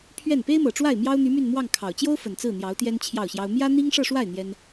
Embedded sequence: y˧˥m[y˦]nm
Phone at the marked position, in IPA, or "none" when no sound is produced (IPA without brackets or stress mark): y˥˧